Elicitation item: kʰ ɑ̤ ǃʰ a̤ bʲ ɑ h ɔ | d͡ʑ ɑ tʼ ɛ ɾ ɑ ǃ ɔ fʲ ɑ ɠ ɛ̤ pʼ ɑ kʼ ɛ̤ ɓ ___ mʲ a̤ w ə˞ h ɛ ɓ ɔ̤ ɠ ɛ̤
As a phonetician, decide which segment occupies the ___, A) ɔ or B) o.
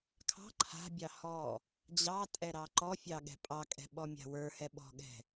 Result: A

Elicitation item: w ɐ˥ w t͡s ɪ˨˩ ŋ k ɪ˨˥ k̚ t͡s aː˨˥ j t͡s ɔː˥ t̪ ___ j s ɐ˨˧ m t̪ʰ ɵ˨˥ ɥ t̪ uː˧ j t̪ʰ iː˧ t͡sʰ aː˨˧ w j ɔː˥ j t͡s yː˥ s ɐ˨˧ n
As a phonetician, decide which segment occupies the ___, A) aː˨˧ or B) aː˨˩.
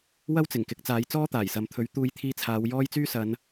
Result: B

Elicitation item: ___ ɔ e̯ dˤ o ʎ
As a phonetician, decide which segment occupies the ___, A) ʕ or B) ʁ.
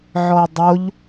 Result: A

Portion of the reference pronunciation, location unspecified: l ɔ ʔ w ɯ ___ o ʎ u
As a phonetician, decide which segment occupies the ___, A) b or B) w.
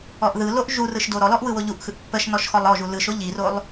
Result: B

